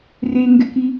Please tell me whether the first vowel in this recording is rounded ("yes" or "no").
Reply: no